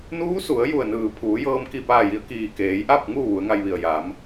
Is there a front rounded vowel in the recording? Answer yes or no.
no